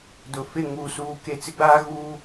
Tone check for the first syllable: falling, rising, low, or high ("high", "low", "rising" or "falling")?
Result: low